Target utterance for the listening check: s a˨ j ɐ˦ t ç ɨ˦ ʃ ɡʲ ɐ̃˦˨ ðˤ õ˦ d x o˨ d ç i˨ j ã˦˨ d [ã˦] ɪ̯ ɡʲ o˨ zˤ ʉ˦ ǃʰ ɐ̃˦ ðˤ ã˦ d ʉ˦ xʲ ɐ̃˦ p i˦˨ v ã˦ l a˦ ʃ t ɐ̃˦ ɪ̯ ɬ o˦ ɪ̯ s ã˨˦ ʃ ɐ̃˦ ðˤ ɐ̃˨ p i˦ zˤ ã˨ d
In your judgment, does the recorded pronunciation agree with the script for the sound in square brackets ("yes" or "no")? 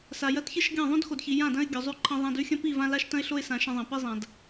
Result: no